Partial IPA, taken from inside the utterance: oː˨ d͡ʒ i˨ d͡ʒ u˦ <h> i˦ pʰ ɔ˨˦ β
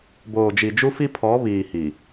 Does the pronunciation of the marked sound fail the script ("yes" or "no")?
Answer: yes